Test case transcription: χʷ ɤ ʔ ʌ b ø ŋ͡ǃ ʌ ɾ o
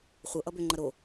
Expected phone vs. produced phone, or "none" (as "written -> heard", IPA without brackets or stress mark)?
none